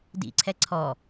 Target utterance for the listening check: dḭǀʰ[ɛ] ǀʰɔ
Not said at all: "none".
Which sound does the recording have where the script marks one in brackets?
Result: ɛ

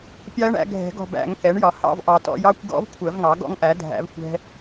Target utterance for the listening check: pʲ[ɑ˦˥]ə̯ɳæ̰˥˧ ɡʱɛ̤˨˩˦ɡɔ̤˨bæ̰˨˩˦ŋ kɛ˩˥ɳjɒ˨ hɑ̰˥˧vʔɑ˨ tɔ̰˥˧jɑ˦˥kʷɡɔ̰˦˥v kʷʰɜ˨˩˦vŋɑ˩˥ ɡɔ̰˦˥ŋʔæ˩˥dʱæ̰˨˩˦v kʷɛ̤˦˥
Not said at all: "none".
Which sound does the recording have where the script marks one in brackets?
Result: ɑ˦˥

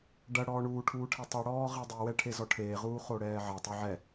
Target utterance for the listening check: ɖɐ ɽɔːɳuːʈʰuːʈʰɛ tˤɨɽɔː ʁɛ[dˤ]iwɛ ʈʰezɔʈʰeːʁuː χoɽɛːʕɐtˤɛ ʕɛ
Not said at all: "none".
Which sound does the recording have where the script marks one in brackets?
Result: dˤ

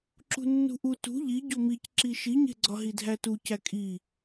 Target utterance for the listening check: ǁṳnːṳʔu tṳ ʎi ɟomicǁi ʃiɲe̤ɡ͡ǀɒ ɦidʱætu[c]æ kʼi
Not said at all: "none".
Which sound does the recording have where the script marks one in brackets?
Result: c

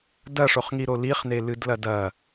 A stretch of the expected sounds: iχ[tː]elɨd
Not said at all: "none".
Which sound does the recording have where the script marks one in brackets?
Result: n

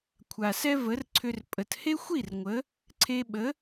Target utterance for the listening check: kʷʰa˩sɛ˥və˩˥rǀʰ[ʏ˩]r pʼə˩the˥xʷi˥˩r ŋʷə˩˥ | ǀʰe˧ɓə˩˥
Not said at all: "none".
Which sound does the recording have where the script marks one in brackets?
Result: ʏ˧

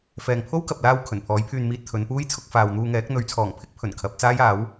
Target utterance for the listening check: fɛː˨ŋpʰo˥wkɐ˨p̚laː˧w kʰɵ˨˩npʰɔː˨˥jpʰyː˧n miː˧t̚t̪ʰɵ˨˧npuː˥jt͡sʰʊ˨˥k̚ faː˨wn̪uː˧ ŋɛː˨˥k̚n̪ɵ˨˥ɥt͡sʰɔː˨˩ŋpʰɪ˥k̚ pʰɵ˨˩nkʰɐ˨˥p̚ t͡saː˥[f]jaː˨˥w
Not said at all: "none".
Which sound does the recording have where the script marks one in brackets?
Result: none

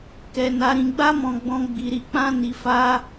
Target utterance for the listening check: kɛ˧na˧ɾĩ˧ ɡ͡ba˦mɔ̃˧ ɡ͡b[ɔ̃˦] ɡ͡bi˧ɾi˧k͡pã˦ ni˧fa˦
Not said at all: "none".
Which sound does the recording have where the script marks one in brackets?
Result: ɔ̃˧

